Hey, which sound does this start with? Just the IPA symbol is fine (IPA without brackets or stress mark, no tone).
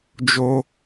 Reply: d͡ʒ